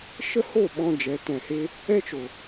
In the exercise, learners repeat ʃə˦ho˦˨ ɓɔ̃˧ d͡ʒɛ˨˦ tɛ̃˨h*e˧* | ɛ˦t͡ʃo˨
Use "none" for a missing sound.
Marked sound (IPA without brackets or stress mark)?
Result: e˧